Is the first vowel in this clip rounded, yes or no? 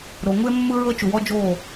yes